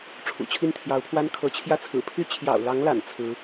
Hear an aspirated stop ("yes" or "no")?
yes